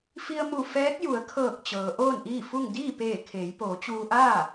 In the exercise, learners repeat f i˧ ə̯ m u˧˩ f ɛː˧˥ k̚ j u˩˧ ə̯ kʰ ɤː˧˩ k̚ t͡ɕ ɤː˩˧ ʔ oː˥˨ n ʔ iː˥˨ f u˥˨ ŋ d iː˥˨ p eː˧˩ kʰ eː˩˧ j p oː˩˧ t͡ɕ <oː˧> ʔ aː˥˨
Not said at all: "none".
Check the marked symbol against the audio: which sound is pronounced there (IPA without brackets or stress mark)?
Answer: uː˧